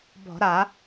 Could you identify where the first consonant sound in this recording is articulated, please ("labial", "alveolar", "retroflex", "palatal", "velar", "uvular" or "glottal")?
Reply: labial